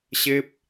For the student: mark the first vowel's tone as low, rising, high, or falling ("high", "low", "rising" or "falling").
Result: high